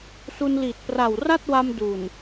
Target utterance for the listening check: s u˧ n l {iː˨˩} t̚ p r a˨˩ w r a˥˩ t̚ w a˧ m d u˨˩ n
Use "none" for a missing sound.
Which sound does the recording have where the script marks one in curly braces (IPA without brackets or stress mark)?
iː˨˩